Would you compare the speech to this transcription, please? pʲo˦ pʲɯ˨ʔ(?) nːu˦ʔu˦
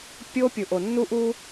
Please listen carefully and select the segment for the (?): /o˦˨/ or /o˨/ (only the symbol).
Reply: o˨